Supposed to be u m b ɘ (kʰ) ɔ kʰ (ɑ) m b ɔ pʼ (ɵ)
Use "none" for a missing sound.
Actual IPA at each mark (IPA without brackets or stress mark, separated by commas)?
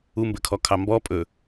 kʰ, ɑ, ɵ